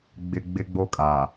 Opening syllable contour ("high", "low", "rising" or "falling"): low